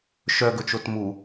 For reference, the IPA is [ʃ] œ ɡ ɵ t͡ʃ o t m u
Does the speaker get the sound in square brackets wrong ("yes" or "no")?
no